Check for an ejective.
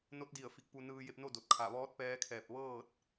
absent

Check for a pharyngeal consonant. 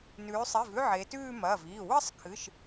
present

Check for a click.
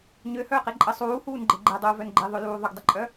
present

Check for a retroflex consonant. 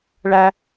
present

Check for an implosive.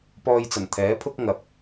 absent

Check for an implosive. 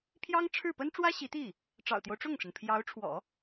absent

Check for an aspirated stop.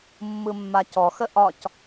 absent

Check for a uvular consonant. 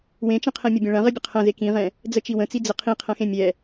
present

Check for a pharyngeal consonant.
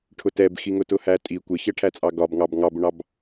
absent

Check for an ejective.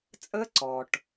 present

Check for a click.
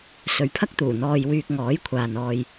absent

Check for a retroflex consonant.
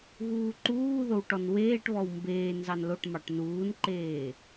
present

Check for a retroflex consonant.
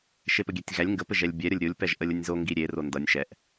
absent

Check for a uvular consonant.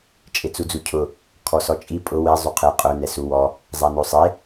present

